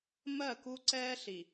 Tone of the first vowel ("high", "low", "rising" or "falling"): falling